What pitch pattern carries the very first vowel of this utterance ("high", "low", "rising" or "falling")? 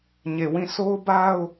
low